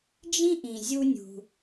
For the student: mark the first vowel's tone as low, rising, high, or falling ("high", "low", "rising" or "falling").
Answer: high